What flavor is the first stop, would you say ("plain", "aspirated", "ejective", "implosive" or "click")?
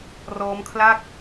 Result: aspirated